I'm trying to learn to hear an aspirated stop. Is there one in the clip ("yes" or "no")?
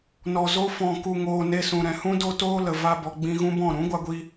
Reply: no